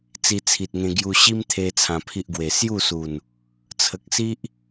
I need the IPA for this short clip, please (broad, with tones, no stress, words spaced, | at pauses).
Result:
t͡si˧t͡sʰi˨t̚ŋẽ˧ ɡju˧ɕi˦mt̪ʰe˧ t͡sʰã˧pʰi˦ʔɡwe˧ sju˥˧su˨˩n | t͡sʰə˨k̚si˦ʔ